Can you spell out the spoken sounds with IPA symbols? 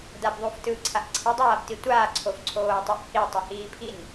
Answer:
dabðˤuftɯǀʰaʔ ǀʰidˤaːbti tʷaːǀʰofǀʰoː tˤoʔhi tˤɯhiːpʰin

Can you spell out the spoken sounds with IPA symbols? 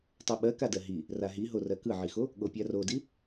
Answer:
tˤoɓɜkadɜ ɦi | raɦiɦo rɜkɯʕixo | ɠopʲarodi

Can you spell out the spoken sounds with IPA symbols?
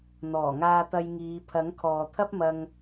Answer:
n̪ɔː˨˩ŋaː˧t̪ɐ˧j ŋiː˨˧ pʰɐ˨˥ŋkʰɔː˨t̪ʰɐ˥p̚mɐ˧ŋ

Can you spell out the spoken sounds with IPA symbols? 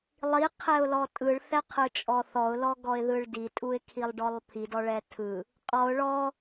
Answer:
lˠiqʰɛʊ̯lɔ tʼɯɭθɛqʰɯt͡ʃʼɔ θɔʊ̯lɔɡɔɪ̯ðɯɭ ditʼuɪ̯kʰilˠɖɔlˠ pʰidɔɭɛ tʰɯ | qʼɔʊ̯ ɭɔ

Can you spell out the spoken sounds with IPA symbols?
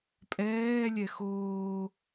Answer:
pʼɛː lʲɛxoː

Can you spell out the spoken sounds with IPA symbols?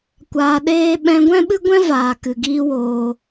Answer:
kʷaː˧ɗeː˦ ɓɛ̃˧ɡʷɛ̃˦ɓɨ˦ ɡʷɛ̃˦vaː˨ kɨ˨ɡiː˦woː˧

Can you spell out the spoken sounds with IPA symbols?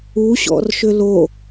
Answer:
u ɕɔ̰rʃʏlo

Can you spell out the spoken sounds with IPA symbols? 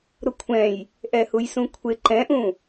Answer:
ɾʊkʷʰɛ̃j | ʔɛhujsũkʷʰɪ ǃɛ̃ʔũ

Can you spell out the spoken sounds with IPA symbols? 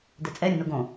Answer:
dɛt͡sʼɛ ɾʲə̃noɡõ

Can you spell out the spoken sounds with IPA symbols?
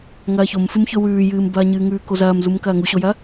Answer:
ŋɐːçomfɨmçɵ wʉːjɨːmbɐːɲɨː ŋʉːkozɐːmzum kɐːŋuɕojɐ

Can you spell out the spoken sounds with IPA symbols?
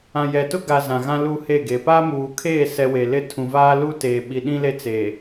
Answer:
ã˨jɛ˨tʊ˦ɡa˨ zã˨ɣã˦ luː˦heː˦˨ɡeː˨ paː˦muː˨kʰeː˦˨sɛ˨ we˨lɪ˦ tʰũ˨vaː˦ lu˦teː˨ ɓi˨ɗĩ˦le˦t͡seː˨

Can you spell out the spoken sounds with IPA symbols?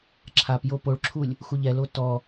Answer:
ǁʰapjo poɭǁʰulʲ | xuʎɛlo tɔ

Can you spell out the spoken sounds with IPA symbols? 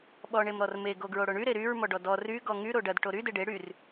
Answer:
ɓɔɳemɾɔrme ɡoɡɹoɽoɳy ɾeɾyɹmɔɖɔ dɔ ry ɡɔŋy ɾoɖɐd ʈoɾy deɖe ɽyr

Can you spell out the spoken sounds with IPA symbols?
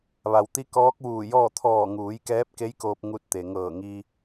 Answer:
ʋa˩wt̪i˧˥ kɔː˧˥k̚ʋuː˧˩jɔː˥˨ t̪ʰɔː˧˩ŋuː˩˧j kɛː˧˥p̚ke˧˥jkoː˧p̚ ŋu˧t̚t̪e˩ŋɤː˧˩ŋi˧

